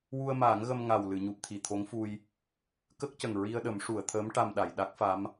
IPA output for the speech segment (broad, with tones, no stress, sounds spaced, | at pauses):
w u˧ ə̯ m aː˨˩˦ ŋ ɣ ə˧ m ŋ a˨˩ w l ɨ˨˩˨ ɲ u˨˩ p̚ t̪ʰ i˨˩ t̪ʰ o˧˥ ŋ f u˧ j | k ə˦˥ k̚ c ə˨˩ ŋ ɹ i˧ ə̯ ɗ ə˨˩˦ m ʂ u˨˩˨ ə̯ t̪ʰ əː˧˥ m ʈ a˧ m ɗ a˨˩˨ j ɗ a˦˥ k̚ f a˧˥ m